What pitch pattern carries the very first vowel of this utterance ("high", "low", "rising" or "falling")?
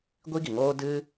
high